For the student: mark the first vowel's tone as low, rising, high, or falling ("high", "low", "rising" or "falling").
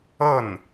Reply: falling